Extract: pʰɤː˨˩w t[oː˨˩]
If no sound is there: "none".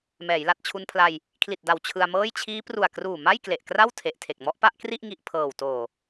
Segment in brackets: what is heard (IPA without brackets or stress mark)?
oː˨˩